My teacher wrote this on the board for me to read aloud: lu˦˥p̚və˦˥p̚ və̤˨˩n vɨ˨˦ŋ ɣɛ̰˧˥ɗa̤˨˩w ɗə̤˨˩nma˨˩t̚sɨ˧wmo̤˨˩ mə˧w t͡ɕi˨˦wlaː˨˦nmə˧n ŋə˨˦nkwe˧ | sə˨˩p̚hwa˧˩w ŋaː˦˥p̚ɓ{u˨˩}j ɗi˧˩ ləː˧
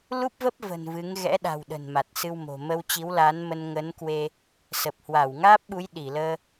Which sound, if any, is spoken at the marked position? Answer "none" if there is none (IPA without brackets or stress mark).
u˨˦